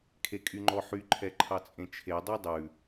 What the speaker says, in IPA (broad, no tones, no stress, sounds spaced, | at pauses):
kʰ e kʼ y ŋ͡ǃ ɔ ħ y ǃʰ ɛ ǃʰ ɑ t͡sʼ ẽ t͡ʃʰ e dˤ ʉ dˤ ʉ